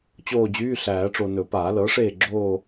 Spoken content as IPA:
t͡ɕ oː˦˨ d͡ʑ yː˧˥˧ ɬ æː˨˩˦ ʈ͡ʂ o˨ n ɵ˨˩˦ p aː˨˩˦ l ɤː˩˥ ʂ eː˦˨ ɡ͡ǁ oː˦˨

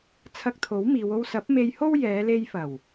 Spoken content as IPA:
t͡sʰ ɐ˧ k̚ t̪ʰ o˨˥ w m iː˨˧ w o˧ w s ɐ˨˥ p̚ m e˧ j h o˥ w j ɛː˨˧ l e˧ j f ɐ˨˩ w

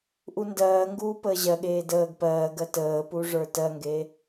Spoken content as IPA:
ʔ u n d ɜː ŋ ɡ uː p əː ʑ ɜ ɠ eː d əː ɡ p ɜː ɡ ɜ t əː p u ʐ ə˞ t ɜ ŋ ɡ e

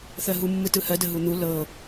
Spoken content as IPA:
θ ɜ ɦ u mː ɯ t ɯ h ɜ d ə ɦ u n̪ u l ɤ

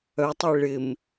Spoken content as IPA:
œ tˤ i ɭ ɪ m

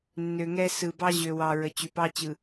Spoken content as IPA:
nː ø˨ ŋ ɛ˦ s ɯ˨ b ɑ˦ ʑ ø˨ w ɑ˨ ɹ ə˨ t͡ɕ y˨ p ɑ˦ t͡ɕ ɯ˨

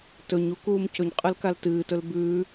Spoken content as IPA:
t ɵ ɲ u k uː m c ɵ ɲ qʼ ɨ l k a l t ɨː t ɵ l b ʉː

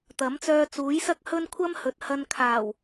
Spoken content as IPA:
t̪ ɐ˨˥ m t͡s œː˧ t͡s uː˨˥ j s ɐ˥ k̚ h ɵ˥ n kʷʰ ɐ˥ m h ɵ˨ t̚ h ɐ˧ n kʰ aː˨˩ w

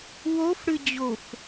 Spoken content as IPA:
w o f ɽ ɨ d͡ʑ o f

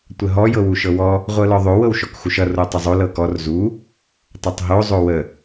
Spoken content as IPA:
tʷ ə ɦ ɔ j ɤ w u ʃ ɤ w ɔ | ʁʷ ɤ l ɔ ðˤ o w ɤ w ʃ ɔ k x u ʃ ʌ r o tˤ ə zˤ o l ɤ k ɔ r z u | tˤ ʌ tˤ ɦ o zˤ o w ə

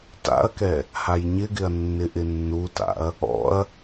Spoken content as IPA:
t a̰ ɐ̯ k ɛ | h a j ɲ ɪ ɡ ɪ ɐ̯ nː ɪ ʔ ɪ nː u t a̰ ɐ̯ | ɔ̰ ɐ̯

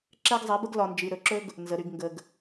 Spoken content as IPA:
ǁ ɛ˦ ɡ zˤ ɛ˨˦ b ə˦ ɡ l ɒ˨ n d͡ʒ i˨ ɾ ɵ˨ ǁ ɵ˦ ɡ | n z ə˨ ɾ y˨ ɡ ŋ ɡ ə˨ ɡ

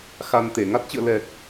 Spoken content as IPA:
x a˧ n t̪ e˧˩ ŋ a˦˥ t̚ t͡ɕ ɨ̰˧˨ ə̯ l ɛ˨˩ k̚

